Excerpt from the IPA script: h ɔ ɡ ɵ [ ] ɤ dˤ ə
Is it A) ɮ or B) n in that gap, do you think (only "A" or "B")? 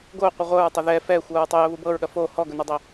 B